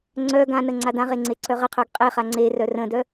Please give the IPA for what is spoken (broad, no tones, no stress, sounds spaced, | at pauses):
ŋ͡ǀ œ ɡ ã n ə ŋ͡ǀ a d ã ʁ e ŋ͡ǀ e ǀ œ ʁ ə qʰ œ ɡ qʼ e χ a ŋ͡ǀ e r œ r ə̃ d œ